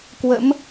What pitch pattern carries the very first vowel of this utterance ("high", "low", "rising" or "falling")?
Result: rising